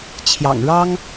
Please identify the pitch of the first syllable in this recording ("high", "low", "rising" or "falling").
low